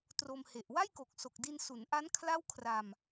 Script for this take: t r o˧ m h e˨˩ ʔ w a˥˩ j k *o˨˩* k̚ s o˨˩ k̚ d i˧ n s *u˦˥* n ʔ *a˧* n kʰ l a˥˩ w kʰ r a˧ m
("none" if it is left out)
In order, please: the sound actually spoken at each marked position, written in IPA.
o˨˩, u˩˦, a˦˥

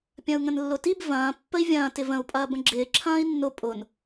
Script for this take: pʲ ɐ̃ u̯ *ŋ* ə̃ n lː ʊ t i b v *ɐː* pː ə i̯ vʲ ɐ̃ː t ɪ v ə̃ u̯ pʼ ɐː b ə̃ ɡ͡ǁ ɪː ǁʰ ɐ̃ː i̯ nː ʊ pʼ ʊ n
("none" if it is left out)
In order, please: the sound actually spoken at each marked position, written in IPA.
ŋ, ɐ̃ː

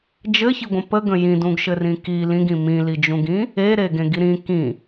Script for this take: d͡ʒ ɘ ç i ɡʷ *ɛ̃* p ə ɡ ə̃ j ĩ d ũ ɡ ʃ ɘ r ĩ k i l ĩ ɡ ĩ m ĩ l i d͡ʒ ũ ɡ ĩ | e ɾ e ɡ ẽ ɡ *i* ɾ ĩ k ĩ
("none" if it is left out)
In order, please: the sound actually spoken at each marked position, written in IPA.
ə̃, i

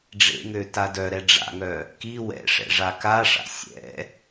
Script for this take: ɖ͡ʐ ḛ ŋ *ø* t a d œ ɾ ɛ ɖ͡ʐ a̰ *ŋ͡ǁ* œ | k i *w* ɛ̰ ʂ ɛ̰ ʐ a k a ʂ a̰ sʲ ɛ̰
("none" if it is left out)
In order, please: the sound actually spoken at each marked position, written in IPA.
ø, ŋ, w

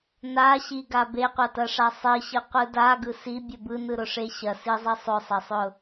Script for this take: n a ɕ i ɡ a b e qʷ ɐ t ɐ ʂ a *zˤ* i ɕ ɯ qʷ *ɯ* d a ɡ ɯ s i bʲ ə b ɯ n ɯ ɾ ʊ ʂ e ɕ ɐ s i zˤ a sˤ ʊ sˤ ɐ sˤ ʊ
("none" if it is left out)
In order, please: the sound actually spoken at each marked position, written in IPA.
sˤ, ɯ

